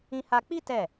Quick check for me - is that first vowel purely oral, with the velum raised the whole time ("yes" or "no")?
no